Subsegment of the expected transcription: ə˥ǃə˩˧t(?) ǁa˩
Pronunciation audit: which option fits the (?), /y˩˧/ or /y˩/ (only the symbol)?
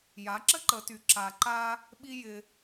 y˩